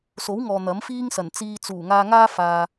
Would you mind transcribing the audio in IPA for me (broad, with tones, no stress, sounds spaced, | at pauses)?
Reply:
s o˨˥ w ŋ ɔː˨ n̪ ɐ˨˥ m f iː˥ ŋ s ɐ˨˩ n t͡s iː˧ t͡s uː˨˩ ŋ aː˧ ŋ aː˥ f aː˨